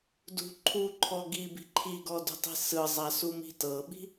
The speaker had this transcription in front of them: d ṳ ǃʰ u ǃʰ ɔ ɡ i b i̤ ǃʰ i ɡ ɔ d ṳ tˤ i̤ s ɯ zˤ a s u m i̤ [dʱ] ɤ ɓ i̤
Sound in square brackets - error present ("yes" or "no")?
yes